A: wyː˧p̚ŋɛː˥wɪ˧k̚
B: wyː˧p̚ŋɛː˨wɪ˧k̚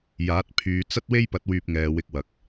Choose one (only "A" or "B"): B